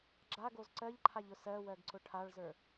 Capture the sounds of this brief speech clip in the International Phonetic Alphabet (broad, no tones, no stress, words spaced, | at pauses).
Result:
ɡ͡ǁaɡoz ǀɜʎǃʰaʎʊ sɜwɜɡǀʊ ʈʰaɭzə˞